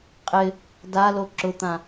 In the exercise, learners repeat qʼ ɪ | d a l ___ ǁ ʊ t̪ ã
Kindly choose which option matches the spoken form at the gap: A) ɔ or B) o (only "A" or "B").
B